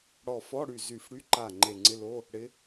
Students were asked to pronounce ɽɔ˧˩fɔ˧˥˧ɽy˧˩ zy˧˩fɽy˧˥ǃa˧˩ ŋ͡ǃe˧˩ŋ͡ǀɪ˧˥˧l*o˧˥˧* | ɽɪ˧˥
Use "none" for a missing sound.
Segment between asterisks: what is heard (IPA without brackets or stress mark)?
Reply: o˧˥˧